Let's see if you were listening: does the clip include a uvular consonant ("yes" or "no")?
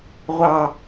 yes